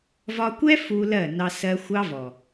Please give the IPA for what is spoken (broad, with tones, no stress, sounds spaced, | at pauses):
v ɒ˧ kʷ ɛ˦ f u˧ l ɜ˦˨ n ɑ˧ s ɜ˧ xʷ ɑ˧ v ɔ˨